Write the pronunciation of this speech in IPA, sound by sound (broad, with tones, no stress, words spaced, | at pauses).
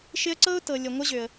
ʃɪ˦ə̯ǀɤ˥ʊ̯ tɤ˨lʲə˨ ŋʷə˦ʑø˨ə̯